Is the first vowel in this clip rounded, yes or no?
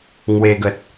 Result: no